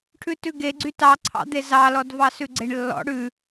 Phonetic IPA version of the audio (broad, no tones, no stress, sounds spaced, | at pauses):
ʈʰ ʉ t ʉ ɡ e ɡ͡ǀ y t ɑ ǀʰ ɑ̰ d̪ e z ɑ l ɔ d v ɑ s ʉ ɡ͡ǀ e ɳ lː ɔ̰ ɽ ʉ